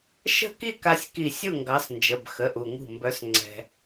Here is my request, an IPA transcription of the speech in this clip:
ʃ ə̤˥˨ k i˥˨ k a˦ sʲ k i˧˩ sʲ u˥˨ ŋ ɡ ɑ˨˦ s n d͡ʒ ə˩˧˩ b x ə˩˧˩ ʔ u˩ ŋ ṳ˧˩ m b œ˨˦ s ŋ͡ǀ ɛ̤˩

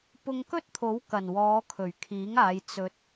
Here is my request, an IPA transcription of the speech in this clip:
p ʊ˧ ŋ k ɵ˥ t̚ t̪ʰ o˨˥ w k ɐ˨˩ n w ɔː˨˧ kʰ ɵ˨˩ ɥ kʰ iː˨˥ ŋ aː˨˧ j t͡s ɵ˧ t̚

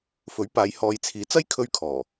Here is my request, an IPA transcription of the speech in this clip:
f ɵ˨˥ ɥ p aː˨˧ j h ɔː˨ j t͡sʰ iː˨˥ t͡s ɐ˥ j kʰ ɵ˥ ɥ kʰ ɔː˨˩

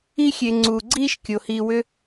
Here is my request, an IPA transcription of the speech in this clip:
i˥ xʲ e˨ ŋ͡ǀ uː˩ ɡ͡ǀ iː˥ ʃ kʲ o˩ h iː˨ w ʏ˦

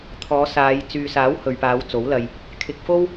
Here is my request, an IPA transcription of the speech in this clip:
t̪ʰ ɔː˨˧ s aː˨˧ j t͡s yː˨ s aː˨˥ w h ɵ˨ ɥ p aː˨˧ w t͡s o˨˥ w l ɐ˧ j | kʰ ɪ˧ k̚ f o˥ w

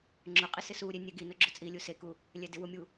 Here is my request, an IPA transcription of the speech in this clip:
ŋ͡ǁ ʊ qʼ ɪ s ɪ s u ɾʲ e nʲ ɛ ɡ i n ʊ ɡ͡ǁ ʊ t͡sʼ i lʲ u s e k u | lʲ ɛ d ɪ w ʊ mʲ u

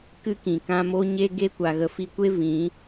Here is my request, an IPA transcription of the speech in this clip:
k ɨ˦ k ĩ˨ k ã˦ m o˦ ɲ e˦ ɡ e˦ kʷ a˨ ɣ ə˧ f i˧ kʷ e˦ v ĩ˨˦

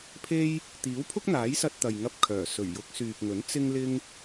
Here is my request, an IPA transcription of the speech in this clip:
pʰ e˥ j | t̪ iː˨˥ w pʰ ʊ˥ k̚ n̪ aː˨˥ j s ɐ˧ t̚ t̪ ɐ˨ j ŋ ɐ˧ p̚ kʰ œː˨˩ s ɵ˨˩ ɥ j ʊ˨˥ k̚ s yː˨ p̚ ŋ ɵ˨˥ n t͡s ɪ˥ ŋ l ɪ˥ ŋ

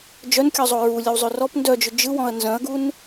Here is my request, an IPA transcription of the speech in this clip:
d͡ʒ œ n kʲ ɔ zˤ o ɹ u lʲ ə w zˤ ø r ɔ p n d œ d͡ʒ ʏ d͡ʒ ɯ w ɔ̃ ɐ̯ n z œ̃ ɐ̯ ɡ u n

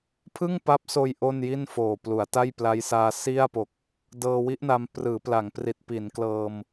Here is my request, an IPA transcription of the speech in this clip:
pʰ ɯ˥˩ ŋ p a˦˥ p̚ s oː˧ j ʔ o˥˩ n j i˥˩ n f oː˨˩ p l u˩˦ a̯ t a˥˩ j p l a˦˥ j s aː˧ s i˥˩ a̯ p o˨˩ k̚ | d ɤː˧ w i˦˥ ʔ n a˧ m p r ɯː˩˦ p l a˩˦ ŋ p r i˨˩ t̚ p i˩˦ n k l ɤː˧ m

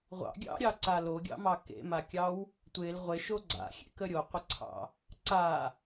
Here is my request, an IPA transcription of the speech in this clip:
ʁʷ ɑ̰ ɡʲ ɑ̰ ɾʲ ɑ ǀ a l o ɡʲ ɑ̰ m ɑ k ḛ m a kʲ ɑ w | tʷ e l ʁʷ e ʃ o ɡ͡ǀ a̰ xʲ ḛ k ə ɾʲ o qʷ ə ǀʰ ɑ̰ | ǀ a

